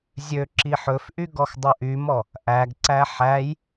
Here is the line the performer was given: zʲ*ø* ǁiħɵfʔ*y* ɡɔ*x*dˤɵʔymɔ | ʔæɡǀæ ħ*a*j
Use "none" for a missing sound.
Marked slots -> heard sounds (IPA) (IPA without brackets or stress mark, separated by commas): ø, y, x, æ